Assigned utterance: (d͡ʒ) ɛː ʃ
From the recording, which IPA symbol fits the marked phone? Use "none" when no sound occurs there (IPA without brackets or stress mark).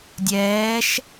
dʲ